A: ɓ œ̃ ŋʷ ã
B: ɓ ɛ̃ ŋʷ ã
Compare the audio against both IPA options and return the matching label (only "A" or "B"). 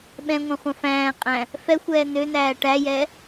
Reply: B